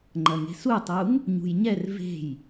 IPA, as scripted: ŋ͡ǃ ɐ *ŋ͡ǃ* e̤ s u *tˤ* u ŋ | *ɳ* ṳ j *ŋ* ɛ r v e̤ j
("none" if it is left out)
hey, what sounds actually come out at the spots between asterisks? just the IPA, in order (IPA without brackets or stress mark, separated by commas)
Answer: ŋ, tˤ, ɲ, ɲ